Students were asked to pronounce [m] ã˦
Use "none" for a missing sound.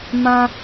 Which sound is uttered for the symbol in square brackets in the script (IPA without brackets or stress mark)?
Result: m